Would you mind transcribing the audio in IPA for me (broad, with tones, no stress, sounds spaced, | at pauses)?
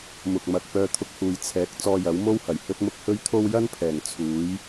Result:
m ʊ˨ k̚ m ɐ˨ k̚ p œː˧ t̪ʰ ʊ˧ k̚ h uː˨ j t͡sʰ ɛː˨˥ k̚ t͡s ɔː˧ j ɐ˨˥ w m o˥ w h ɐ˨˩ j h ɵ˧ t̚ m ʊ˧ k̚ h ɵ˥ ɥ t̪ʰ o˥ w j ɐ˥ n pʰ ɛː˨˩ ŋ t͡sʰ uː˨˥ j